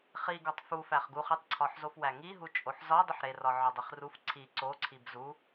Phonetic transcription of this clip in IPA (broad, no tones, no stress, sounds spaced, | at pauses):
χ i ɡ ɒ tˤ f u f æ χ ɡ u χ i tˤ ǀʰ ɒ ħ z o f w æ ŋ i ɦ u t͡ʃʼ o ħ z ɒ dˤ u ħ ɾ e r ɒ ʕ ɒ dˤ i χ r u f ǀʰ i ǀ o ǀʰ i b z u